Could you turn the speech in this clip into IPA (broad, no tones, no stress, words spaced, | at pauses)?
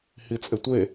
hit͡sʼetʷe